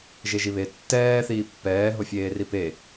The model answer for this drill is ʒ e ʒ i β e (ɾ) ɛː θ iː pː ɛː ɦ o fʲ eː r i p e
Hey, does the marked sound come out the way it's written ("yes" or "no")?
no